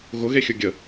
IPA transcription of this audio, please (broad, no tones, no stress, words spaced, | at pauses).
ɣʊɣexʲʊ ɡʲə